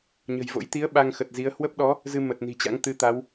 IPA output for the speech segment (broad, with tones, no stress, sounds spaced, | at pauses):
ɲ ə̤˨˩ j v o̰˧˥ j t̪ i˨˦ ə̯ ɓ a˧ ŋ x ə˨˩ t̚ z i˨˦ ə̯ h w ə˦˥ p̚ ɗ ɔ˨˦ | z ɨ˧ m ə˨˩ t̚ n i̤˨˩ t͡ɕ a̰˧˥ ŋ t̪ ɨ˧ t̪ a˨˦ w